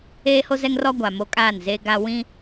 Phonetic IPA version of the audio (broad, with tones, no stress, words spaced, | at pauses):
eː˦ho˦zɛ˦ŋrɔ˦ ɡʷa˨ mo˦ kʼaː˦˨nzeː˦ ɡa˦ wĩ˦